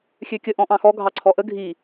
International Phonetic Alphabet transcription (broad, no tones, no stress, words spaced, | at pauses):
xʲøkʲə ʔɔ̃ʔɑ̃xɔ ɡʱɑǀʰɔʔə ɡʱi